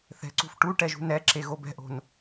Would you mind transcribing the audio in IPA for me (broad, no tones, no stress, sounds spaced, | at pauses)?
θ ɛ̤ ǀ ṳ f ʈ u ʈ ɛ ʒ ṳ n ɛ ǁ e ɣ o b ɛ̤ ʔ o̤ n